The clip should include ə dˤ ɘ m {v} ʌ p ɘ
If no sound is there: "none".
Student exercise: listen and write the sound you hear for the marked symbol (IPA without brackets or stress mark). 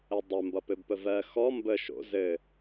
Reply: b